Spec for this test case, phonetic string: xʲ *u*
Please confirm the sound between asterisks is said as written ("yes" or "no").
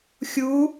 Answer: yes